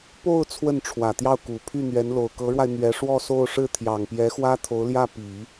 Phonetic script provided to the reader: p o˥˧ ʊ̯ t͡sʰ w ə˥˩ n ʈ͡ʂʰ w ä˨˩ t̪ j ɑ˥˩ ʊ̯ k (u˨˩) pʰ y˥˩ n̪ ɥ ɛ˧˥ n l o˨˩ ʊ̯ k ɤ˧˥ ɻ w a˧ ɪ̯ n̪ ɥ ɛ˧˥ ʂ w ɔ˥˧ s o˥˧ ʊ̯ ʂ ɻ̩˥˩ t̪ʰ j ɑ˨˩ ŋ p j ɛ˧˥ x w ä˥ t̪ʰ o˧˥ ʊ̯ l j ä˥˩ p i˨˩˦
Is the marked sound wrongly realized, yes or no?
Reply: no